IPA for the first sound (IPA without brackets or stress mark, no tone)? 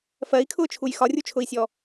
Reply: f